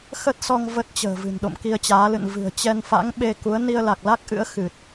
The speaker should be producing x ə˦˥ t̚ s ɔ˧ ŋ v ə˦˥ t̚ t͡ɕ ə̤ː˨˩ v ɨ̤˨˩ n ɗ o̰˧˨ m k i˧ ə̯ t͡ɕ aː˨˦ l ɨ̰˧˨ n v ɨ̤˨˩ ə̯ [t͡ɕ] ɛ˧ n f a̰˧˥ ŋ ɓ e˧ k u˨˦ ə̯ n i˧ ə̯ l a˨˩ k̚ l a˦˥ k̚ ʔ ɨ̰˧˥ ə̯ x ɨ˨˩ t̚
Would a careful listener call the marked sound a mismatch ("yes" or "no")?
no